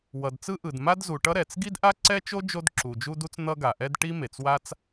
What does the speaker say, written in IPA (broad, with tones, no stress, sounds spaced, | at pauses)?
w ʌ˩ d t͡s ɯ˥ ʔ ɯ˩ d m a˥ d z u˩ ʈ ʌ˥ ɾ ɛ˩ t͡s ɡ i˥ d ʔ a˥ ǀ ɛ˥ t͡ʃ o˥ d͡ʒ o˥ d ǁ u˩ d͡ʒ u˥ d u˥ t͡s n̪ ʌ˥ ɡ a˩ ʔ ɛ˥ d ʈ i˥ m e˩ t͡s w a˥ t͡s